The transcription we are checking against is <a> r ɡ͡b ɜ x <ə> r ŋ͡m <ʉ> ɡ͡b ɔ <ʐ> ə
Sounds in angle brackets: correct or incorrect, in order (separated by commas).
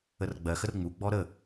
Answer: incorrect, correct, incorrect, incorrect